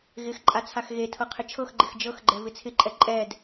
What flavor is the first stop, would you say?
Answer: click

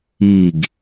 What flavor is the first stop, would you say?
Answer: plain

